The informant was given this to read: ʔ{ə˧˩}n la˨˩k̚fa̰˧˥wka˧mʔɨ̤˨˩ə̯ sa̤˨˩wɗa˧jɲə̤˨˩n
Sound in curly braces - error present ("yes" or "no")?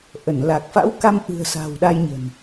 no